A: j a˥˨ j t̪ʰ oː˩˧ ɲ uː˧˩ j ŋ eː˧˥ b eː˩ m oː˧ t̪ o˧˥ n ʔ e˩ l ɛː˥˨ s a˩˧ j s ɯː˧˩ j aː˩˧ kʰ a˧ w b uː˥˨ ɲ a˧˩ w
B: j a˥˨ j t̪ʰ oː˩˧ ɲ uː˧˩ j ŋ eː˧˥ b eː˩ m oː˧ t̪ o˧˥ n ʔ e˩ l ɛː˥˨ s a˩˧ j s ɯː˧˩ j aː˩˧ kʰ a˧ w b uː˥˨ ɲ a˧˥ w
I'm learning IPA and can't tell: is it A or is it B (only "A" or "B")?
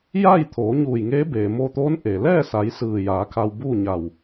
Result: A